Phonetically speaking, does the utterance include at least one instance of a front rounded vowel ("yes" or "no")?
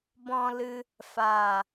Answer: no